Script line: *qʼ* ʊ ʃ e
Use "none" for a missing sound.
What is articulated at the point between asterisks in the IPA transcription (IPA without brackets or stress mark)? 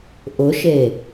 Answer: ʔ